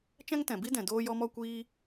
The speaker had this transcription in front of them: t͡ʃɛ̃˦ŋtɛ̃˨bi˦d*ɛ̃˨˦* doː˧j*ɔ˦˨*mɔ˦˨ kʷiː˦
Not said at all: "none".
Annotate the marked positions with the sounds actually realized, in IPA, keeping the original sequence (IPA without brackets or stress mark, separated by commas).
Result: ɛ̃˨, ɔ˧